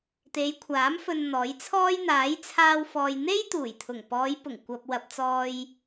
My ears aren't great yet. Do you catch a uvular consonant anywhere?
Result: no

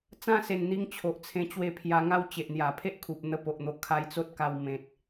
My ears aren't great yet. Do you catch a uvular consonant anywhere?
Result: no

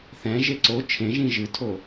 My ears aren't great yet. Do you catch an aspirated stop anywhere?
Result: yes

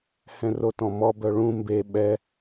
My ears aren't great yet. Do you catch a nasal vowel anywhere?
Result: yes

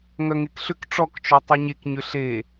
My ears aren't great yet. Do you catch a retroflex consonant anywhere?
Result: yes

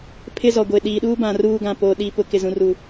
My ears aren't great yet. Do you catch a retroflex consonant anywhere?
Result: no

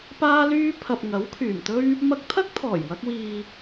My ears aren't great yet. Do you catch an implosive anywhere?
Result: no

